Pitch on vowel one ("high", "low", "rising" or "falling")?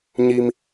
high